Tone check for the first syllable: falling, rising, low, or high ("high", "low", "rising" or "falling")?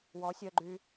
rising